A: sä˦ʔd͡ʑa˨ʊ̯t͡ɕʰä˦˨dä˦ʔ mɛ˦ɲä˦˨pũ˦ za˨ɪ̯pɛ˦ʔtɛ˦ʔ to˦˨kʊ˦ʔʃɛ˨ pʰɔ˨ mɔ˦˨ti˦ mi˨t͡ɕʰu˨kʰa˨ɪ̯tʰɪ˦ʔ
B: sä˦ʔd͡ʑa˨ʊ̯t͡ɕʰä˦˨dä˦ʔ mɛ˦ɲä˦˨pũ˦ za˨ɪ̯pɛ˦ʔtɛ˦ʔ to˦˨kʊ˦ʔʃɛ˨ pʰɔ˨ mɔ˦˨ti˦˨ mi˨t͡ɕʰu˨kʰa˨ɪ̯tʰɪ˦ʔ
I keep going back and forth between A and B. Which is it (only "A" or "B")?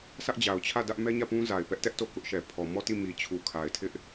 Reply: B